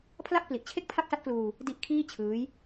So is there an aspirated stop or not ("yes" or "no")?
yes